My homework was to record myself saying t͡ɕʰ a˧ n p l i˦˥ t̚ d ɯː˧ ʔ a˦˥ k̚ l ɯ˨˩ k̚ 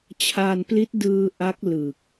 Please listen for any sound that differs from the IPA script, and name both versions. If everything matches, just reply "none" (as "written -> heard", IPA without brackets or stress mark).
none